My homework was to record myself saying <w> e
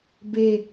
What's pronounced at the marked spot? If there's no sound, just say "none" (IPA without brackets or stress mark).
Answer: b